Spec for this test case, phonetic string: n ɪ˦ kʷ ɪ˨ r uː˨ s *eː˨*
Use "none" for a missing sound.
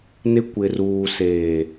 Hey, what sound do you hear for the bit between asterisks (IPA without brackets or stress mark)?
eː˨